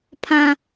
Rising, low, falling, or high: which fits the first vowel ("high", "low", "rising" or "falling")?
high